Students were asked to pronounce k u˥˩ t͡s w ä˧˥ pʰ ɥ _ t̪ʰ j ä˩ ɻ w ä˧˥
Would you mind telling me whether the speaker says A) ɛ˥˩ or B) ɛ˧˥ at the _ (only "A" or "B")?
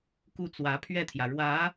A